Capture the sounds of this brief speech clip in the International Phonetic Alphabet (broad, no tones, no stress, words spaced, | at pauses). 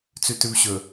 t͡sʉtʉvɕɵ